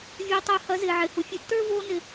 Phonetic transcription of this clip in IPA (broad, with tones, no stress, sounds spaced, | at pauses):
vʲ oː˧ tˤ ɐː˧ h ɐː˨˦ z ɪː˨ ʕ ɪː˨ h u˨ fʲ ɛ˧ tː ə˞˦ v oː˧ n ɪ˨